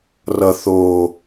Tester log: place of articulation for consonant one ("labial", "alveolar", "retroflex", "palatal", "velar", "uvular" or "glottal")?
alveolar